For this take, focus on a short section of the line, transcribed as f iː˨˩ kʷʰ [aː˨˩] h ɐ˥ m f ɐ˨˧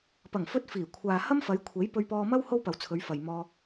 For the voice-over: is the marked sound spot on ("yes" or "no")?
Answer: no